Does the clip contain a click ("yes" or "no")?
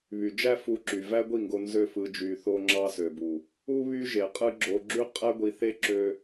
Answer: yes